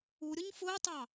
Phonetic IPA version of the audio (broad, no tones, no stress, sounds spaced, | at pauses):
u ɾʲ ʊ ɲ f ʊː tˤ ɑ